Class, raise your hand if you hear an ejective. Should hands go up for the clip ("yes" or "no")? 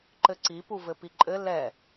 yes